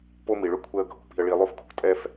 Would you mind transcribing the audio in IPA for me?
po˥mi˧ɭʏ˥ kʷʰɛ˥ə̯ɡʱo̤˧ pi̤˧ə̯ɭi˧ lˠo˥fkʰo̤˧ tʼɛ˥f

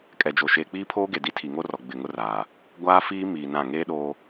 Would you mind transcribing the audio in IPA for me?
kʼɛ˨d͡ʒo˨ ʃeː˨k͡piː˦pʰoː˦ɡe˨ di˦ tʰi˨ŋo˦rɔ˨ ɡ͡bɪ˨ŋʊ˦raː˨ | ɡʷaː˦fiː˦miː˨ nã˦˨ ŋeː˦ɗoː˦

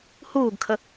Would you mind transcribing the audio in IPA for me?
huːɡkʰə

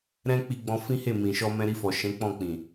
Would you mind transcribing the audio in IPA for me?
ɾɛ̃˦ k͡pi˧ɡ͡bɔ̃˧ fĩ˦he˦˨ mĩ˨ʃɔ˧mɛ̃˧ ɾi˧fɔ˨ʃɛ̃˨˦ k͡pɔ̃˦˨k͡pĩ˨

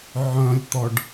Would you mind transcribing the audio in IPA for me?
ʕœ̃lʲt̪ɔɖ

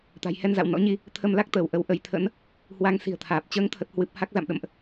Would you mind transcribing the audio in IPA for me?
t̪a̤˨˩jhɛ˧n za̰˧˨w nɔ̰˧˥ɲi˧ | t̪ʰə˧mla˦˥k̚t̪əː˧˩w ʔə˨˦wʔə˨˦jt̪ʰə̰˧˥n | hwa˧ŋsi̤˨˩ə̯t̪ʰaː˨˩p̚ t͡ɕəː˨˦ŋt̪ʰə˨˩t̚hwɨ˨˩p̚ ha˦˥k̚ za̰˧˨mɗə̰˧˨mʔ

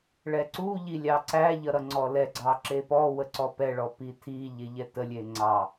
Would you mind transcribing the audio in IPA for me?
ɭɛǀu ʎilʲɑǀæ ʎʌɾʌŋ͡ǀɔlɛ ɡ͡ǀɑǁepɔ wəǀɔpɛ ɭɔpitʰi ʎeʎɛtə lʲeŋ͡ǀɑ

